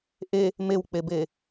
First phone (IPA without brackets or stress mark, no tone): ʔ